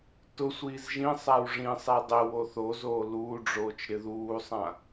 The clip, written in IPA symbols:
t ʊ sʷ iː z ʒ ĩ sˤ a w ʐ ĩ sˤ ɛ dˤ ɪ w o θ o z oː l uː ɖ͡ʐ oː t͡ʃ ɾ ɪ ð uː sˤ ã

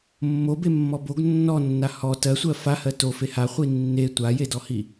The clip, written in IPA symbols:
mː o b e mː ɔ b o ɡ nː ɔ nː a h ɔ t ɜ sʷ ɜ f a h ɜ t o f e h a χʷ i nː e tʷ a j e d ɔ h i

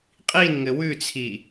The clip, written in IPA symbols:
qʼ i n ŋ ɘ w ʉ t͡sʰ i

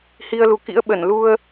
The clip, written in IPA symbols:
h i˧ ə̯ l u˨˩ k ḭ˧˥ ə̯ ɓ ə˧˩ n l u˧ ə̯

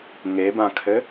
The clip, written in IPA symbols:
ŋ e b ã kʰ ɘ

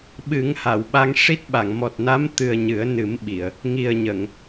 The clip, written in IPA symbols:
ɓ ɨ˨˩˦ ŋ h a˨˩˨ w ɓ a˧ ŋ ʂ i˦˥ t̚ ɓ a˨˩˨ ŋ m ɔ˨˩ t̚ n a˧˥ m t̪ ɨ˨˩ ə̯ ɲ ɨ˨˩˦ ə̯ n ɨ˨˩˦ m ɓ i˨˩˨ ə̯ | ŋ i˨˩ ə̯ ɲ ə˨˩˨ ŋ

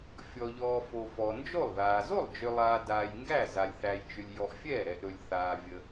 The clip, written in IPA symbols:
fʲ ɔ˨ ʎ ɔː˨ f o˨ f ɔ˨ n d͡ʒ o˥˩ lˠ ð aː˨ z o˥˩ lˠ d͡ʒ ʏ˨ lˠ aː˨ d aː˨ j ŋ ɡ æ˥˩ z a˨ lʲ θ æ˨ j t͡ʃ ʏ˨ lʲ j ɔ˨ ʔ fʲ ɛː˥˩ ɾ ɛ˨ ʔ ɾ ɵ˨ lʲ θ aː˨ vʲ ə˨

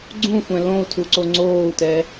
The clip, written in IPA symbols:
ɡ͡ǀ ũ xʷ ɛ̃ l õ u̯ tʰ u ǀ o ŋ͡ǀ oː u̯ t ɛ

